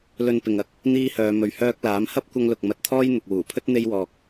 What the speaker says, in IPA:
l ɵ˧ n p ɪ˨ ŋ ɐ˨˥ k̚ | n̪ iː˧ h œː˨ m ɵ˨ ɥ h œː˧ k̚ l aː˨˥ m h ɐ˥ p̚ kʷ ɐ˧ ŋ l ʊ˨ k̚ m ɐ˨˥ t̚ t̪ʰ ɔː˥ j n̪ ʊ˨ k̚ w uː˨˩ pʰ ɵ˥ t̚ n̪ e˥ j w ɔː˧ k̚

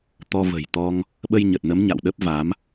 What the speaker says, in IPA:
t̪ ɔ˧ v ə̤˨˩ j t̪ ɔ˧ ŋ | ɓ ə˧ j ɲ ə˨˩ t̚ n ə˨˦ m ɲ a̰˧˨ w ɗ ə˦˥ p̚ v a˨˦ m

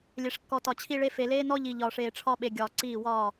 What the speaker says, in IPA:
lʲ e˨ ʂ kː ɔ˨ t ɒ˨ t͡ɕʰ i˦ ɭ e˦ f e˨ l eː˦ n ɔ˦ ʎ i˨ ʎ ɒː˨ ʂ eː˨ ʈ͡ʂʰ ɒ˦ ɓ e˨ ɡʲ ɒː˨ ǀ iː˦˨ w ɒː˦˨

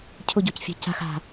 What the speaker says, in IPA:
cʰ ʊ ɟ o c fʲ a̤ c a̤ x a̤

